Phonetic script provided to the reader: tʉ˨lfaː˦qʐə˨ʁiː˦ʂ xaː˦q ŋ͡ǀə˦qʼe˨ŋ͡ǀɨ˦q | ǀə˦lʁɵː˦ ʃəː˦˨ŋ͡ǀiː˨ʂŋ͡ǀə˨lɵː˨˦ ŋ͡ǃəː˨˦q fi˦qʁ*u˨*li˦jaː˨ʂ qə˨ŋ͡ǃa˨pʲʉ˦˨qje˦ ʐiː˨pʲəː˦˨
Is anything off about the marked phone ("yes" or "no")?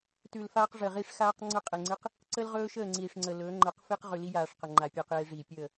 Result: yes